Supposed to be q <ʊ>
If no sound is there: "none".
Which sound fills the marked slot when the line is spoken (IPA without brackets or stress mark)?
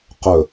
ɵ